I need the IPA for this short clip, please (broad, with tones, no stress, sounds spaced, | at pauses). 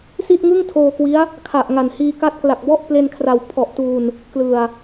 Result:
s i˥˩ t̚ ŋ ɯ˥˩ ŋ tʰ oː˧ k w i˦˥ a̯ | kʰ a˨˩ ʔ ŋ a˨˩ n h iː˧ k a˦˥ t̚ k l a˨˩ k̚ b ɔ˥˩ ʔ p l e˧ n kʰ r a˨˩ w pʰ ɔ˨˩ ʔ t uː˧ n | k l ɯ˨˩ a̯